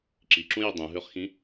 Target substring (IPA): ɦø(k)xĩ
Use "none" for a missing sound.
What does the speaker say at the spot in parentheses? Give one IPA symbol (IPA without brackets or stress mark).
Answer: χ